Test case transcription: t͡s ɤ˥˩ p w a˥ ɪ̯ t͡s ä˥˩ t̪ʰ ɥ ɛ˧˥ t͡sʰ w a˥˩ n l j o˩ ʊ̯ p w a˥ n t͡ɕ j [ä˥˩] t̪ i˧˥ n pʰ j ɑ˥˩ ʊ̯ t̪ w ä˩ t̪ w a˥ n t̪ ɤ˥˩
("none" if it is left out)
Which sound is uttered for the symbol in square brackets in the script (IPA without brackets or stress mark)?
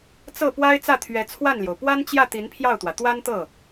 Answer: ä˥˩